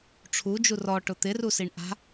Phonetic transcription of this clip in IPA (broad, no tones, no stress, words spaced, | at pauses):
ʈ͡ʂʰud͡ʒu rɔʈʊ t̪ɪrusiɳ ʔa̤